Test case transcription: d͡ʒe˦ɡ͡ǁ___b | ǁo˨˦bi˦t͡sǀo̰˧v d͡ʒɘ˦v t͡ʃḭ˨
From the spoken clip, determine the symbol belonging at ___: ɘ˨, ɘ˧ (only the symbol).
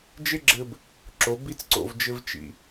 ɘ˧